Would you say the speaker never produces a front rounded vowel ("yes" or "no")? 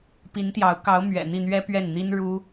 yes